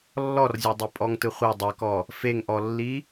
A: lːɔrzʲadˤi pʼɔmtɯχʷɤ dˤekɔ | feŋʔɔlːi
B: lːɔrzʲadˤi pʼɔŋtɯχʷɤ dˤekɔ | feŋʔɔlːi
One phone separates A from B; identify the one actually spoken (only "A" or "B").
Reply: B